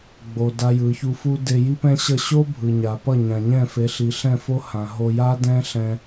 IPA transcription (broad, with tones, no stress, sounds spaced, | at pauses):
ɡ͡b o˨ d a˧ j ɯ˨ ç u˧ f u˦ d e˧ j i˦ p ɛ̃˦ ɕ ʌ˦˨ ɕ o˦ bʱ ɯ˨ ɲ a˨ p ʌ˦˨ ɲ ã˨ ɲ ɛ̃˦˨ f e˨˦ ɬ i˨ ɬ ɛ̃˦˨ f o˦ h ã˨ ɦ o˧ j a˦ d ɛ̃˦ ɬ ɛ̃˧